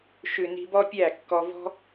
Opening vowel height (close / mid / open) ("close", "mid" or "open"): close